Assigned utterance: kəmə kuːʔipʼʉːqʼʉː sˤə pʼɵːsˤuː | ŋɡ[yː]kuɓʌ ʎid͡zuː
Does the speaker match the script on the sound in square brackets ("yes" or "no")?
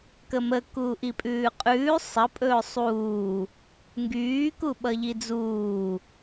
yes